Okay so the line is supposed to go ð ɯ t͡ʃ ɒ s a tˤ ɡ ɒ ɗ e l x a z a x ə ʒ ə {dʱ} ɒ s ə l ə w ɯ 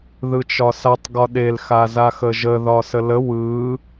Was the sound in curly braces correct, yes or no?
no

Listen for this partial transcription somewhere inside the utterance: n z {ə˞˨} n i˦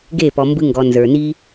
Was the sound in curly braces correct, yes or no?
yes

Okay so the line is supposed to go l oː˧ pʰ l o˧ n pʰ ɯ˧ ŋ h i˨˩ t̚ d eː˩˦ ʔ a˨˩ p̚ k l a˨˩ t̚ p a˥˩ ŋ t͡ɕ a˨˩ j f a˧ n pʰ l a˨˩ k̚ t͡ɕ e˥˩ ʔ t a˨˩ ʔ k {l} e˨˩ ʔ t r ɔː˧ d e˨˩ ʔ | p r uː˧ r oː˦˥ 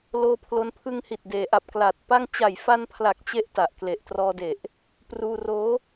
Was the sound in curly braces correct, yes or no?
yes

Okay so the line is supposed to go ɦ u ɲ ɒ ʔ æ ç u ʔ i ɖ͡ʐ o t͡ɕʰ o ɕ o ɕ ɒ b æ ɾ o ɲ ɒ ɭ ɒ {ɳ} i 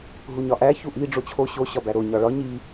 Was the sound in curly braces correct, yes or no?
no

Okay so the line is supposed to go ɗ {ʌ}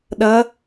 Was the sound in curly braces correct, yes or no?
yes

